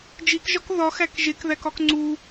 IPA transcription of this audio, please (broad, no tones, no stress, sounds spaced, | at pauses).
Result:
d͡ʒ i k ʒ ɒ k ð ɒ x æ k ʒ e k ð æ k ɒ k ŋ͡ǀ u